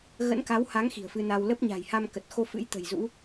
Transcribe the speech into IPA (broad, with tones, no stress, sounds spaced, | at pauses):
ɣ ə̰˧˥ n k a˨˦ w h a˨˦ ŋ x i̤˨˩ ə̯ f ɨ˧ n a˧ w l ə˦˥ p̚ ɲ a̤˨˩ j h a˧ m k ə˨˩ t̚ x o˧ f ɨ̰˧˥ j t̪ ə̤˨˩ j z ṵ˧˥